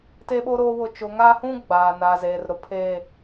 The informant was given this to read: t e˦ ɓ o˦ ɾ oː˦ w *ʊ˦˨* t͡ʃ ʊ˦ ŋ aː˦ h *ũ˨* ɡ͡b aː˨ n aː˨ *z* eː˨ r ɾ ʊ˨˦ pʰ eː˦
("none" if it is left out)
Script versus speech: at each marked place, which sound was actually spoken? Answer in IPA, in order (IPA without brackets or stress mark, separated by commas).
ʊ˦˨, ũ˦, z